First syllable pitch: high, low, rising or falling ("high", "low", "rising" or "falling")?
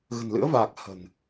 low